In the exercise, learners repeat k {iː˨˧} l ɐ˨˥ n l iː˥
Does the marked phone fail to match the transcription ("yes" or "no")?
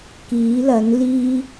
yes